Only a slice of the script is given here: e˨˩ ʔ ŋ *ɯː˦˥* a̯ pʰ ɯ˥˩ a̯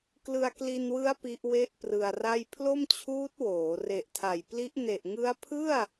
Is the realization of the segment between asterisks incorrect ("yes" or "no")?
yes